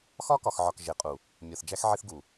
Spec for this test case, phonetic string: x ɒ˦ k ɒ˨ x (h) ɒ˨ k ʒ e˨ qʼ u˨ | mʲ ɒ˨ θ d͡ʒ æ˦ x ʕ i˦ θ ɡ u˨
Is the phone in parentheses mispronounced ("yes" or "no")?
yes